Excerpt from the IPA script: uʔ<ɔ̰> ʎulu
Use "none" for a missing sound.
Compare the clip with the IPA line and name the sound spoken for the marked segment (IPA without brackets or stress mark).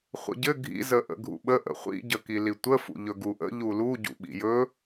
ə̰